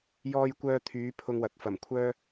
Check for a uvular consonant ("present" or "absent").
absent